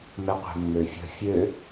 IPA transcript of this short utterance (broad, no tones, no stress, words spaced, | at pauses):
mɛqʷɛ̤mːøfʲə̤ fʲø